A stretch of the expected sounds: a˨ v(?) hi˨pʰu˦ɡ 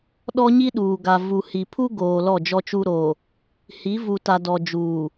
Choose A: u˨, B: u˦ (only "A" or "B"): A